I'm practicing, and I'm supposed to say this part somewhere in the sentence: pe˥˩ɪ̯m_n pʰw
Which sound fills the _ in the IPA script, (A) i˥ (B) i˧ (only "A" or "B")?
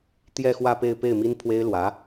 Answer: A